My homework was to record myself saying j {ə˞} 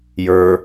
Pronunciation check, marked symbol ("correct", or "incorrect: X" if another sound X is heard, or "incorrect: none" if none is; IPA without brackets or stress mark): correct